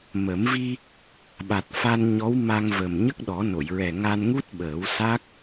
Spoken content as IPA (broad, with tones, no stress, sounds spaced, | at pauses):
m ə˨˩˦ m v i˧ | ɓ a˨˩ t̚ f a˧ n ɲ ɔ˧˥ w m a˧ ŋ v ə˨˩ m ɲ ə˦˥ k̚ ɗ ɔ˨˩˦ n o˨˩˨ j ɹ ɛ˨˩ ŋ a˧ n ŋ u˦˥ t̚ ɓ əː˨˩˦ w s a˦˥ k̚